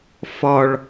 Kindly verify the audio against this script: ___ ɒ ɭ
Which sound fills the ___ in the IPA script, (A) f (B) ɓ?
A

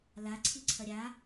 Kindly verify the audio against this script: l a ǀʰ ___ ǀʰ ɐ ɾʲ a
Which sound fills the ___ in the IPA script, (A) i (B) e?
A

